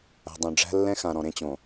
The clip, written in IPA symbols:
æ̤˨ dˤ õ˨ ɖ͡ʐ æ̤˦ lː ɛ̃˦ x ã˨ ɾ ɔ̃˨ ɾ ẽ˦ t͡ɕ õ˨

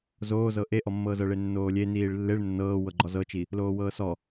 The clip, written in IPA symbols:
z oː z ɤ ʔ e ʔ ɔ mː ɤː z ɤ ɭ e nː oː lʲ e n iː ɭ lː e ɭ nː ɤː w ɤ ɡ͡ǃ ɔ z ɤ t͡ʃ i | l oː w ɤː s ɔ

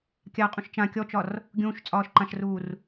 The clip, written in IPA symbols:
kʲ a qʼ ũ ʃ t͡ʃ ã kʲ ɔ t͡ʃ ɒ r | ɡʲ ũː ʃ t͡sʼ ɒː ʃ ǃ ã ʃ r uː r

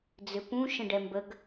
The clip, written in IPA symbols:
d͡z ʏ p ũ ʃ ə̃ ɖ ɛ m b ə ɡ

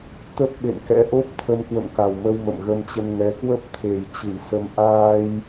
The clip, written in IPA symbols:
t̪ ə˦˥ p̚ ɓ ḛ˧˨ n k ɛ̰˧˥ ʔ o˦˥ p̚ t̪ʰ ə˧ m k w ə̰˧˨ m k a˨˩ w m ə˧ w m ə̰˧˨ m ɣ ə˧ m t͡ɕ ə˧ n ŋ ɛ˨˦ k w ə˦˥ p̚ t̪ʰ e˨˩ j t͡ɕ ɨ˧˩ j s ə˧ m ʔ aː˧ j

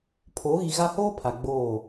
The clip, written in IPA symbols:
pʰ oː˨˦ ɣ i˨ ɣ a˦ h oː˦ pʰ a˨ ɡ͡b oː˦˨

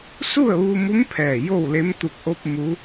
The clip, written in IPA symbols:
s u˥˨ ə̯ ʋ u˧ m u˧˥ m pʰ ɛː˧˩ j o˥˨ w l e˧˥ m t̪ u˧˩ k̚ ʔ o˧ p̚ m u˧˥

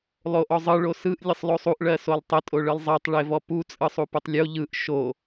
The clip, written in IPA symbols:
lˠ o ʔ ɔ zˤ ɯ ɭ o s ɯ ʔ lʲ ə sˤ lˠ o sˤ u ʔ ɭ ɜ s o lˠ tˤ ə tʼ o ɭ ɯ lˠ zˤ ɜ tˤ ɭ e v ɔ p u t͡sʼ ɯ sˤ u p ɯ tˤ lʲ o ʎ ɯ ʔ ʃ o

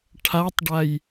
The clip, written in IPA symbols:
ʈʰ a tˤ ɖ a j

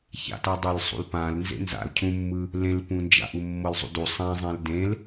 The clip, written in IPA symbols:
ç a̰ t a dˤ e l sˤ ṵ l p ã l n z ḛ n z a̰ l cʰ ũ mː ɯ | l ẽ l p ũ n d͡ʒ a̰ ʔ u mː ɤ l zˤ ṵ d u sˤ ɛ̃ zˤ ɛ̃ l d ẽ l

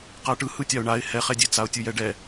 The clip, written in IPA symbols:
q a ʈ ɯ h ɯ tʲ a ʊ̯ ɳ a ɪ̯ h ɛ χ ɛ dʲ e t͡s a ʊ̯ tʲ ɯ j ɛ ɖ ɛ

